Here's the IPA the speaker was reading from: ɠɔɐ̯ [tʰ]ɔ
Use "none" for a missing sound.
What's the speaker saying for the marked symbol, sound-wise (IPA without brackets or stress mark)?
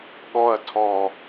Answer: tʰ